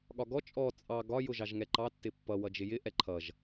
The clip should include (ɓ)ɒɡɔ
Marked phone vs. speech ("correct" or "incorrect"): incorrect